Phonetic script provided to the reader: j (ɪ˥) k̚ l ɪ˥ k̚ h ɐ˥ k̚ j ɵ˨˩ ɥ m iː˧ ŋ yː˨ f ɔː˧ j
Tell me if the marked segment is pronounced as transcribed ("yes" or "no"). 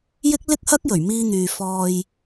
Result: yes